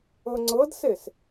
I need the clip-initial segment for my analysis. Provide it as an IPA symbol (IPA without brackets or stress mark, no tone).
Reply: ɤ